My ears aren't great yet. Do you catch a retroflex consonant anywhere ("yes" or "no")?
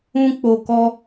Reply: no